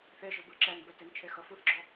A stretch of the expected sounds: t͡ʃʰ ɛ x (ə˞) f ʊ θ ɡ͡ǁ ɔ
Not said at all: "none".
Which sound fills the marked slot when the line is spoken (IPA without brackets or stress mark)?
ʌ